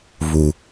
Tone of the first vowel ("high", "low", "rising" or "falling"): low